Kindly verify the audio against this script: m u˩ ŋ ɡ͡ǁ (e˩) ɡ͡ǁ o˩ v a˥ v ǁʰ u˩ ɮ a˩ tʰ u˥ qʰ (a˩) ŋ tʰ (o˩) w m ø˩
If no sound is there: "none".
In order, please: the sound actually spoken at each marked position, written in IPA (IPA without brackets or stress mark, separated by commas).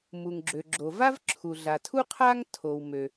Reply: ø˩, a˥, o˩